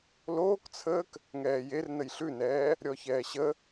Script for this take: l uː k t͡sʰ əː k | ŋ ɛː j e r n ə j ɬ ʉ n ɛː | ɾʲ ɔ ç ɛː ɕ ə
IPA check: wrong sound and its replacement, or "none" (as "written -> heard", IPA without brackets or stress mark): uː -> oː